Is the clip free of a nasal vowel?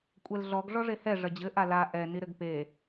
yes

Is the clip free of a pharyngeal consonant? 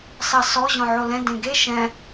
no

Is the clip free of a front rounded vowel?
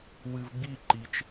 yes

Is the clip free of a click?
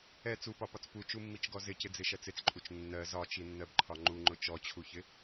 no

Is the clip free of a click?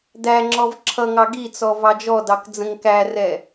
no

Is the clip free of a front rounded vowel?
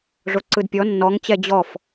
yes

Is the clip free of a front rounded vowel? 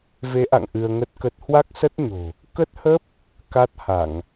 yes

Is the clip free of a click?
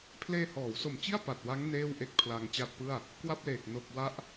yes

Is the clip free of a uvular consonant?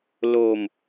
yes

